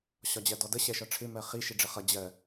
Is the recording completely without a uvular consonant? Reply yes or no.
no